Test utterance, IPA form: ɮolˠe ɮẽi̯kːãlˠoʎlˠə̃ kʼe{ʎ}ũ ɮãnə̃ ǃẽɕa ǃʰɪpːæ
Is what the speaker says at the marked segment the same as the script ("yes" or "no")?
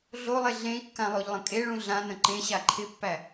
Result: no